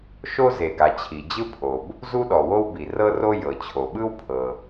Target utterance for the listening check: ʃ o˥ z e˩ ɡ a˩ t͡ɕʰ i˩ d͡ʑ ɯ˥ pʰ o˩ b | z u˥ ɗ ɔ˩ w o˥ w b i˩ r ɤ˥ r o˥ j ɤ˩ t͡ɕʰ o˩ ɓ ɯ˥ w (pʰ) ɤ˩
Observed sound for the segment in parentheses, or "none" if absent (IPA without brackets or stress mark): pʰ